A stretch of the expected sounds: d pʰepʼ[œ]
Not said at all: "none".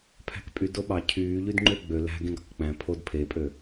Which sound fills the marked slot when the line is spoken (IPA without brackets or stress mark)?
ø